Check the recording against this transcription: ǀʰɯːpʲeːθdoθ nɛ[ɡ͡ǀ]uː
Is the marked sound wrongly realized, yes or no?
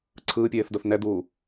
yes